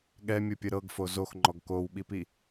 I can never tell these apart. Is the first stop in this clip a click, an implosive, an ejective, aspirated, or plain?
implosive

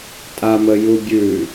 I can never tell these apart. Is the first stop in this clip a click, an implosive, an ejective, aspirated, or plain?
ejective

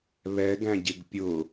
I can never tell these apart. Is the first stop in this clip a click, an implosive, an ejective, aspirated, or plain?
plain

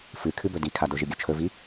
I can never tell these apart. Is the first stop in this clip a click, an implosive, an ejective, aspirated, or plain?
aspirated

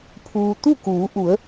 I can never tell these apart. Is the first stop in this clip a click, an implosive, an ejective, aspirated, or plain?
aspirated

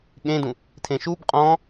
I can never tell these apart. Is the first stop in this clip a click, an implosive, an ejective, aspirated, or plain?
implosive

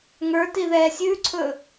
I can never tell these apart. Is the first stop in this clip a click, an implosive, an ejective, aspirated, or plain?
plain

